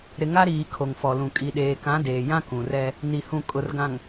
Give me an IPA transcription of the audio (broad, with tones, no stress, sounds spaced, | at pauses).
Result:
ɾ ɪ˨ ŋ a˦ ɾ iː˨ kʰ o˨ ŋ f ɔ˨ l ũ˨ kʼ i˨ ɗ eː˨ k ã˨˦ d eː˨ j ã˦ k ũ˨ r ɛ˦ | n i˨ h ũ˨ kʼ ʊ˨ r ɡ ã˨ ŋ